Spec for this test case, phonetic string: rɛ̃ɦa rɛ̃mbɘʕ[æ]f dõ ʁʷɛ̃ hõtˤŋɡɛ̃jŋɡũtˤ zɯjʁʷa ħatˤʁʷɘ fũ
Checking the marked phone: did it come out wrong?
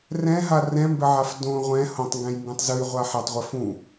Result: yes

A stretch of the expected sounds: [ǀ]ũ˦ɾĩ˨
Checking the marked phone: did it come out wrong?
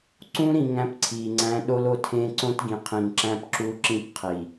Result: no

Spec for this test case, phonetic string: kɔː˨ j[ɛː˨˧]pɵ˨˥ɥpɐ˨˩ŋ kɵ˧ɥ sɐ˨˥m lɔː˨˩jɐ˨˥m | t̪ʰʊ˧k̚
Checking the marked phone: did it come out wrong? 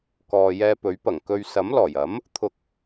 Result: yes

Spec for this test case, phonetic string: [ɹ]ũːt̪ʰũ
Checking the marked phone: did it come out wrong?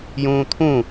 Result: yes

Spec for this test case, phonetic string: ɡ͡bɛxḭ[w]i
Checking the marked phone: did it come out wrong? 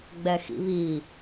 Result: yes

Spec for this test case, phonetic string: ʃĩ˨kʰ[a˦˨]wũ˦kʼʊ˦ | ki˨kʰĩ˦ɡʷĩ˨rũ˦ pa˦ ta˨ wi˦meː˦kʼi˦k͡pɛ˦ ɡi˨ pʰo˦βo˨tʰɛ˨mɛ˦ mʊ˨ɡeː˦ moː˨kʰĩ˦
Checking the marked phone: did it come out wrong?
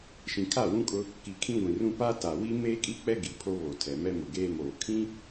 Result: no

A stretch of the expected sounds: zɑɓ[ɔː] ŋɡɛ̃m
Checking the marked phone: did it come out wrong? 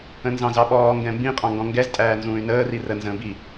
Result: no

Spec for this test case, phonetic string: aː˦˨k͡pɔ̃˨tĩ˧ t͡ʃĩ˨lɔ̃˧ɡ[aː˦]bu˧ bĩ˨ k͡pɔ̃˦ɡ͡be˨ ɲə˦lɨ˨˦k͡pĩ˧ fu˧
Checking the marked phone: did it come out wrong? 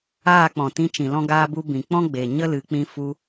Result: yes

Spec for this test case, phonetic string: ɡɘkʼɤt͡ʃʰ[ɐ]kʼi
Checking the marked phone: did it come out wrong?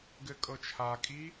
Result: yes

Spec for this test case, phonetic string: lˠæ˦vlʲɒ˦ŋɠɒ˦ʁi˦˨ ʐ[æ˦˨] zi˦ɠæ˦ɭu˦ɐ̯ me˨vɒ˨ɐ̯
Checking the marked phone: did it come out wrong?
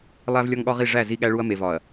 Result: no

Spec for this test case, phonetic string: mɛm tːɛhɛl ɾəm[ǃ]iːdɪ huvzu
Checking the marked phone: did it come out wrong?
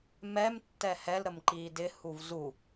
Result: no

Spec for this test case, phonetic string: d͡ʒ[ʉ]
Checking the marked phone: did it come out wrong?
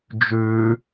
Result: no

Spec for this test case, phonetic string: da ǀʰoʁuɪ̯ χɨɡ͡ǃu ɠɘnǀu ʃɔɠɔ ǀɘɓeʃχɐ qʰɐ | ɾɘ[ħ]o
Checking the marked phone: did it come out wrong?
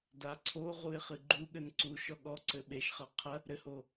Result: yes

